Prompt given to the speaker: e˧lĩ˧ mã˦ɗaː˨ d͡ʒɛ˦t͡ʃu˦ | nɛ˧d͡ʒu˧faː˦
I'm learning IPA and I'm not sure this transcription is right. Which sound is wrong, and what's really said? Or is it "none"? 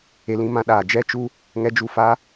n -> ŋ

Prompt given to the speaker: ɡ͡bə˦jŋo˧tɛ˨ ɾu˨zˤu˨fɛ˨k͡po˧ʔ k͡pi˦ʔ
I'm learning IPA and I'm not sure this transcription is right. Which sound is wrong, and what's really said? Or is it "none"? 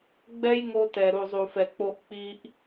ə˦ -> ɛ˦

